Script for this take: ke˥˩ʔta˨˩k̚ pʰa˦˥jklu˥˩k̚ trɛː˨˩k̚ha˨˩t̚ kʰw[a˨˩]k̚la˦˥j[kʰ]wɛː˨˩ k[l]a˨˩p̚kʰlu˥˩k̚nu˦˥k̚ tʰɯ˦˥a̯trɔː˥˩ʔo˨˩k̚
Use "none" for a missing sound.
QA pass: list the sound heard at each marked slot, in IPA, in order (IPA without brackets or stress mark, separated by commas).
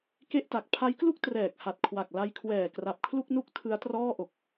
a˨˩, kʰ, r